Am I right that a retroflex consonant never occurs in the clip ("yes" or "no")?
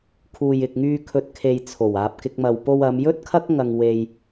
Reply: yes